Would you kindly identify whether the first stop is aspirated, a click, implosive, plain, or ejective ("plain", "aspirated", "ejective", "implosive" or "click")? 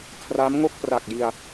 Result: aspirated